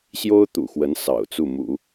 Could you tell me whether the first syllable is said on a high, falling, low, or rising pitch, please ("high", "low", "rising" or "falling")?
high